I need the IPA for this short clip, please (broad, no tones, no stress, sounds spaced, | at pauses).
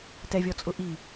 t ɛ vʲ ɔ t͡sʼ ʊ ʔ i